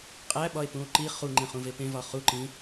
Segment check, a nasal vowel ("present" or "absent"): present